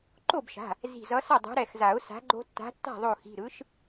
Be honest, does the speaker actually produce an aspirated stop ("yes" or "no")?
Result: no